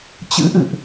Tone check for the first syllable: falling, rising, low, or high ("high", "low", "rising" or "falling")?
rising